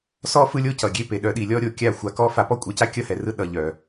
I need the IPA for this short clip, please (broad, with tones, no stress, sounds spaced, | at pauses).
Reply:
s ɔ˦ f ɯ˦ lʲ o˦ c ʌ˨ ɡʲ e˦ p e˨ ɗ œ˦ ɗ i˧ lʲ ɔ˦ ɾʲ o˧ kʲ a˦˨ xʷ a˧ k ɔ˦ f a˧ p ɔ˦ kʷʼ e˨˦ c a˦ kʲ ʌ˦ h ɛ˨ r ɯ˦ ɗ ʌ˨ ʎ œ˨